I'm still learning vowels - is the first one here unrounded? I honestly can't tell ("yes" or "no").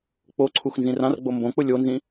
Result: no